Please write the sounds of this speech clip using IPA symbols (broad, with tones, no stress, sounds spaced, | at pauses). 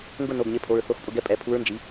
ŋ ɡ ʊ˥˨ n o˩˧˩ ɡ ɲ e˩˥ pʰ o˩˧˩ ɹ θ o˧˥ x pʼ ʊ˥˨ ɡ ɛ˥˨ pʼ ɛ˩˥ pʰ u˧˥ ɹ n d͡ʒ i˩˥